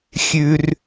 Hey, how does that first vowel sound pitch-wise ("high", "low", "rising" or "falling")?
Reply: low